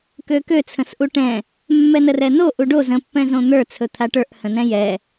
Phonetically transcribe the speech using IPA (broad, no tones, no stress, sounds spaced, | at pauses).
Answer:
k ø k ø t͡sʰ ə̃ s ʔ u ʈ ɛ̃ | mː ɛ n ə r ɛ n o ʔ u ɖ o z ə̃ pː ɛ̃ z õ n̪ ə˞ t͡sʰ ɵ t̪ʰ a ʈ ə˞ ʔ h ə̃ n ɛ̃ j ɛ